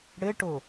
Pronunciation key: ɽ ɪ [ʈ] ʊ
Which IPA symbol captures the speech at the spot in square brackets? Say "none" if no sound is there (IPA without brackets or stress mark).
ʈ